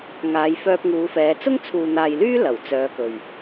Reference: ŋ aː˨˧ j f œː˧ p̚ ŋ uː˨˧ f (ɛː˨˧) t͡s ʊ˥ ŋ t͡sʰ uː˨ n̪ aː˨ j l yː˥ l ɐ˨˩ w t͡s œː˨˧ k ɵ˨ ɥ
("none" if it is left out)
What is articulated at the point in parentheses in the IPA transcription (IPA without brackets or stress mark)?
ɛː˨˧